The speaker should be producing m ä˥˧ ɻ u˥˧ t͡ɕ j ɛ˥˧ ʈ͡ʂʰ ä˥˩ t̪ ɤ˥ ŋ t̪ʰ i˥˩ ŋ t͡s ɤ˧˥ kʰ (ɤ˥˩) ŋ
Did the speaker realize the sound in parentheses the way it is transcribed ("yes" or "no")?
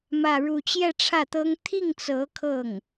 yes